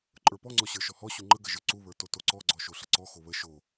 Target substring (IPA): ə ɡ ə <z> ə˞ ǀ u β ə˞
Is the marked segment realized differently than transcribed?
yes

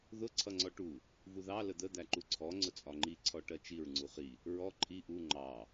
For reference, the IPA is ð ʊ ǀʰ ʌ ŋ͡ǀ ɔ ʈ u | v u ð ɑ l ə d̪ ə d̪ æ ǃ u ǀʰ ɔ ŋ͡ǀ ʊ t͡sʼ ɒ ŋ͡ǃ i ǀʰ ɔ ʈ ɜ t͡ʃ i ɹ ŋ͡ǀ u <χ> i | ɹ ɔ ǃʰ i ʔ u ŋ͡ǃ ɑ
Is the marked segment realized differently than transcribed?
no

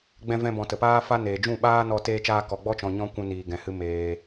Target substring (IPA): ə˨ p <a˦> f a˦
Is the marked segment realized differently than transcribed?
yes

